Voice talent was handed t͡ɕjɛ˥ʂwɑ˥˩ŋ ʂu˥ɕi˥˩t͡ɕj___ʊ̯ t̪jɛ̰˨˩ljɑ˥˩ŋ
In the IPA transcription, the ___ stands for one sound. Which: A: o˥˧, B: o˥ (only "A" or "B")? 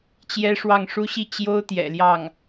B